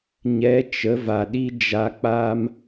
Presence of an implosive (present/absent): present